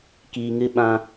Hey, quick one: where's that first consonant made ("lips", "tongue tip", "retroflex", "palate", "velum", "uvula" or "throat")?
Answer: velum